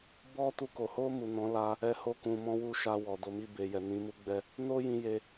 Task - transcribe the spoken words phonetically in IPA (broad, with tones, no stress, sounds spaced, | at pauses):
b ɔ˦ t u˧ k o˨ h o˧ m u˨ n ɔ̃˨˦ l a˧ | ɛ˧ h o˧ k ũ˨ m ɔ̃˨˦ w u˧ ʃ a˧ w ɔ˨ d o˨˦ m i˦˨ b e˨ j ɛ˨ n ĩ˨˦ m u˦ ɡ͡b ɛ˦ | n o˦ j ĩ˧ j e˧